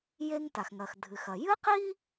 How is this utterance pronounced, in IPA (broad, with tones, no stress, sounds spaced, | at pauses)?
j e˥ ŋ t a˩ x ŋ ɐ˩ x dʱ ɨ˩ x ɐ˩ j ɨ˥ q i˥